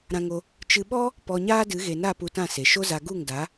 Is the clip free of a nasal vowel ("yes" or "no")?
no